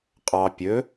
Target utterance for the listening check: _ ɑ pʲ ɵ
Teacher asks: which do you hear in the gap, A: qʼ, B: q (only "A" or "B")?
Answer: A